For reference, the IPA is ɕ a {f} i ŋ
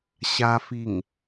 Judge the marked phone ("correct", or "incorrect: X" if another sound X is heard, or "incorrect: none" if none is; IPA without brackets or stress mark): correct